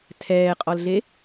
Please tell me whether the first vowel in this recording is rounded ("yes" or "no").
no